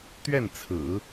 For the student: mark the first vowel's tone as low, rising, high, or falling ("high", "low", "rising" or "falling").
falling